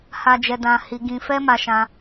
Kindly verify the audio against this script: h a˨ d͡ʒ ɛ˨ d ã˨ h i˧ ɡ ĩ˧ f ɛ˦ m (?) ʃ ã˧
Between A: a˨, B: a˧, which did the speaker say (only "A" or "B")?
B